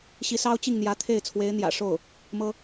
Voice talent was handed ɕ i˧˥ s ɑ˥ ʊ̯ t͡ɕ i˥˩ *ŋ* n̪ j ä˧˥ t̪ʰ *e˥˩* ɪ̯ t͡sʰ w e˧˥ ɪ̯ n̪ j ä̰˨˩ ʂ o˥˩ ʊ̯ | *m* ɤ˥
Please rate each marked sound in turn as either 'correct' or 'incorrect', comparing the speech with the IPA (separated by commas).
correct, correct, correct